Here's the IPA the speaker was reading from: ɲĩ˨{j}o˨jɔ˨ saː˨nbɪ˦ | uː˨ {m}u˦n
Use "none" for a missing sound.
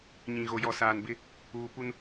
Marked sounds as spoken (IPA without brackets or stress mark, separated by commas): ɣ, p